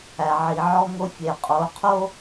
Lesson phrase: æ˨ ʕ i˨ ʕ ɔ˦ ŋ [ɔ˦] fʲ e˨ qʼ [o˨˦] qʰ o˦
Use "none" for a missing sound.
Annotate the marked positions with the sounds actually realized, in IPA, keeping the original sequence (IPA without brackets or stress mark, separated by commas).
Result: o˦, o˨˦